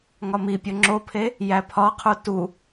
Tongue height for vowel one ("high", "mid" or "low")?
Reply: low